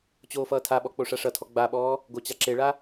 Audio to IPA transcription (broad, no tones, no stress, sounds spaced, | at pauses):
t͡ɕ oː f ʌː tʰ a ɓ ɔ k͡p o ʂ a ʂ ʌ tʰ ɔ ɡ͡b a ɓ ɔː | ɡ o t͡ɕ a ǁ e ɭ a